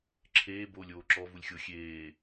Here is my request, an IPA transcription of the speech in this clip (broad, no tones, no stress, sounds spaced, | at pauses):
ǁʰ eː b oː lʲ oː ǁ ɔ v u lʲ xʲ o xʲ eː